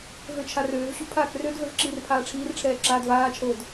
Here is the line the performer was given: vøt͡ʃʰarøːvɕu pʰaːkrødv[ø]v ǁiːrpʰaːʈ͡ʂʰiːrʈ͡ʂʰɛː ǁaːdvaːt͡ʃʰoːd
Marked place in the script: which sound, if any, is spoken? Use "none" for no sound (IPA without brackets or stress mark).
ø